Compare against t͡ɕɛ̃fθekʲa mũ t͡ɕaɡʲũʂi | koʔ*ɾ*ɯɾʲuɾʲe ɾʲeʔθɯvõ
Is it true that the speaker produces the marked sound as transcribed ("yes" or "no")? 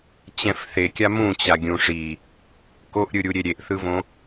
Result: no